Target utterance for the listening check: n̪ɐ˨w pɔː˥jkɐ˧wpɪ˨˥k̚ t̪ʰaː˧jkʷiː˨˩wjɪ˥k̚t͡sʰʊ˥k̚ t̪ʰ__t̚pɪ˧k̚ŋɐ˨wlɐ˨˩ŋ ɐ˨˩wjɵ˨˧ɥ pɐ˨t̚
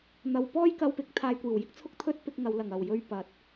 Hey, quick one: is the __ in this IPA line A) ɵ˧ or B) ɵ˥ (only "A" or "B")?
B